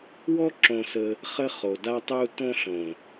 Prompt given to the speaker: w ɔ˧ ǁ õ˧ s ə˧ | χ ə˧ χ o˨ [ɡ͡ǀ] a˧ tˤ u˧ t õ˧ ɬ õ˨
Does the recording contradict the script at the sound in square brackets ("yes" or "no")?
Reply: yes